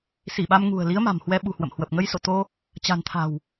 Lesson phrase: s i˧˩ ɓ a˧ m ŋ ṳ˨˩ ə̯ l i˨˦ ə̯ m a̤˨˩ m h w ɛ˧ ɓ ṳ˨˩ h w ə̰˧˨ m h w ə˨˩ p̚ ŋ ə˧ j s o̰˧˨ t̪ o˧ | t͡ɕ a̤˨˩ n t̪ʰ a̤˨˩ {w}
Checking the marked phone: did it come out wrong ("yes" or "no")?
no